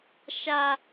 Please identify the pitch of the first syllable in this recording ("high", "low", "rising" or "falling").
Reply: high